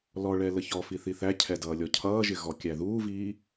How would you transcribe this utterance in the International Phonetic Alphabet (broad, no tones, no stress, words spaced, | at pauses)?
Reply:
lɔɭɛ ləçɔfi θiθæcʰɛ dʌːlʲɔcʰʌːʒɪ ɣɔkʲæðuːviː